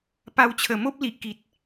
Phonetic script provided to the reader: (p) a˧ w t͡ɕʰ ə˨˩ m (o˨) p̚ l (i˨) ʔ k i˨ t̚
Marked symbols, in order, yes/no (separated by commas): yes, no, yes